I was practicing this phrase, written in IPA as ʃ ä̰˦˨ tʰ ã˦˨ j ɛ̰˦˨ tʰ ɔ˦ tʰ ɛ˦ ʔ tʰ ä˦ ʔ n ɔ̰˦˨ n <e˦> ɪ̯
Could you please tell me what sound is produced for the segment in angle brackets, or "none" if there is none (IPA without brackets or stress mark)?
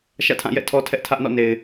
e˨